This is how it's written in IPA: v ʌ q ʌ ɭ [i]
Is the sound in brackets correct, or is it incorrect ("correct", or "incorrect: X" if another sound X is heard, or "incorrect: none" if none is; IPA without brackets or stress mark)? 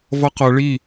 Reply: correct